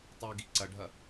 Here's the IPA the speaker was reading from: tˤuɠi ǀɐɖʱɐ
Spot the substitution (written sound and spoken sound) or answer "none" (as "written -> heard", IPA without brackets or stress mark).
ɠ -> ɡ